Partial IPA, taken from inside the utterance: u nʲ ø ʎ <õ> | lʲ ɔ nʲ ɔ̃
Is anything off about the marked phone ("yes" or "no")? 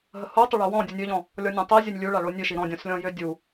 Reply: yes